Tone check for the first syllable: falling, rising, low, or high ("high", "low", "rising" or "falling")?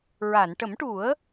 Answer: low